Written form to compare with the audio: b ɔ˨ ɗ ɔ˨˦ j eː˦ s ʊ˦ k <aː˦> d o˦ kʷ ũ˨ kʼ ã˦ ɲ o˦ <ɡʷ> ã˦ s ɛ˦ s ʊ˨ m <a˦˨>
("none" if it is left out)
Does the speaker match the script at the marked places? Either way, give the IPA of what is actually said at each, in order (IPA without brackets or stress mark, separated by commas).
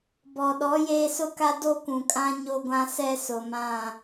a˦, ɡʷ, ã˦˨